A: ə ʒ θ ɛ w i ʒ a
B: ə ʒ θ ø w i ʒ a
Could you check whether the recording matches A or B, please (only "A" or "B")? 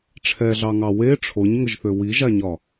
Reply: B